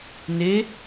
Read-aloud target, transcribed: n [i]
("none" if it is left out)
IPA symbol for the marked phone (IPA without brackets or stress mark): e